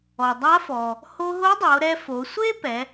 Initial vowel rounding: rounded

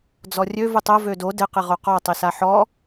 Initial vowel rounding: rounded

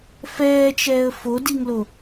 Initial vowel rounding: unrounded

